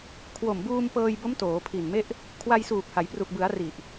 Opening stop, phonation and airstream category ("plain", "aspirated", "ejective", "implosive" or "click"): aspirated